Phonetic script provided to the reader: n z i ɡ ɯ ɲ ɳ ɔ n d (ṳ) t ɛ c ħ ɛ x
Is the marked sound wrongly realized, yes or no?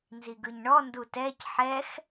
yes